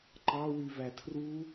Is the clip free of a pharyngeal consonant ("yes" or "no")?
yes